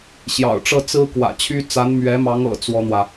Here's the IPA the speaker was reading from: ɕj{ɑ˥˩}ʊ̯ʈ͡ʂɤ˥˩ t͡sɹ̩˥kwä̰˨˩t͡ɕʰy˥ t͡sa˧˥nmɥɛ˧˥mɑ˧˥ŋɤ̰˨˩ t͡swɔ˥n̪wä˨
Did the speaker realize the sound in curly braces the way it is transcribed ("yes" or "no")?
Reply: no